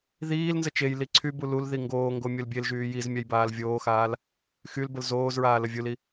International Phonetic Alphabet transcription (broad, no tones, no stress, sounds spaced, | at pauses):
ð iː l n z ə t͡ʃ e j l i ǀʰ y b u l u l ð i ŋ ɡ oː ŋ ɡ o mʲ u l bʲ e l ʒ yː j i z mʲ a j b aː l vʲ oː x aː l | x y l b ə l z oː z ɹ aː l ə vʲ u l i